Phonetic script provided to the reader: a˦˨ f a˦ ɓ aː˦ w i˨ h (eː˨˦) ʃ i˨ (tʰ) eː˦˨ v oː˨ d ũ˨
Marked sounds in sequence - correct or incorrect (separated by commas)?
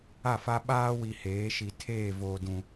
correct, correct